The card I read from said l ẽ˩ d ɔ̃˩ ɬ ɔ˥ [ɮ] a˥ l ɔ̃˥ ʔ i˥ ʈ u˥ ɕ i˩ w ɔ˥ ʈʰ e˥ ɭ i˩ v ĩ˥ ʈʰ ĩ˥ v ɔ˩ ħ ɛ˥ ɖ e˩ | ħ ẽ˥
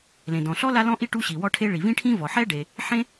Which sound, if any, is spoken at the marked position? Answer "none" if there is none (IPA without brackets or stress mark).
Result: l